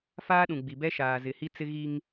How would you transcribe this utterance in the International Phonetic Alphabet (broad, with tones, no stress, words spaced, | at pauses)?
faː˦ɗũ˨ɡ͡bi˨ bɛ˦ʃaː˨ zɪ˨hi˦t͡sɪ˦ɣi˦ŋ